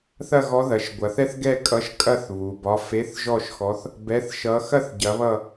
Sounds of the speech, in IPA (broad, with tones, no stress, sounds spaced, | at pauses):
θ ɐ˥˧ ɣ ɔ˧˥ ð ɐ˩˧ ʃ ɡʷ ɐ˩˧ θ ɛ˥˧ θ ɡ ɛ˥˧ kʼ ʌ˧˥ ʃ kʼ ɐ˥˧ θ β u˩˧ b ɒ˧˥˧ f e˧˥˧ θ ʒ ɔ˥˧ ʃ x ɔ˧˥ θ | b ɛ˧˥˧ θ ʃ ʌ˧˥ x ɐ˥˧ θ ɟ ɐ˧˥ β ʌ˥˧